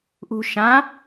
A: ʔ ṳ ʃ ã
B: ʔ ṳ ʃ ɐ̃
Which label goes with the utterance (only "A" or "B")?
A